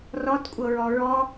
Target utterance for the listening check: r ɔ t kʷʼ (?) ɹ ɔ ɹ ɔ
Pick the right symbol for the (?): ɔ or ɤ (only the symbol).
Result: ɤ